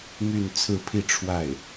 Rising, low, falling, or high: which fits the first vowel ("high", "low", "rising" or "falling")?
falling